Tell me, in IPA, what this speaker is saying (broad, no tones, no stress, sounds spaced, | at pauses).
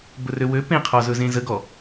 b ɵ r ø w ø p ẽ qʰ ɔ z ɵ z ẽ z ə ɡ ɔ